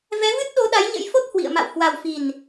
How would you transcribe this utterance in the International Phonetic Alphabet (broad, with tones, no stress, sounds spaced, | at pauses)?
v ɛ˨˦ v ɨ˦˥ t̚ ɗ o˨˦ ɗ a˨˦ j ɲ ə̰˧˥ j f o˦˥ t̚ h w ḭ˧˨ ə̯ m a̰˧˨ w h w a˨˩ w f i˨˩ n